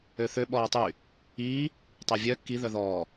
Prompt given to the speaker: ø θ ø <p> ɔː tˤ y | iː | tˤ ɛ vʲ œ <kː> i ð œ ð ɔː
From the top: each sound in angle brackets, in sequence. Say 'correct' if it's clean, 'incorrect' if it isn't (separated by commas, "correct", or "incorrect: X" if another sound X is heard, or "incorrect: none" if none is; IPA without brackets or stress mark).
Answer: incorrect: ɓ, correct